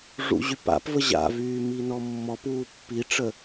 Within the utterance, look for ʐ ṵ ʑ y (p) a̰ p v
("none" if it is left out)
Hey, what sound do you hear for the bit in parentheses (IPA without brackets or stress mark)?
p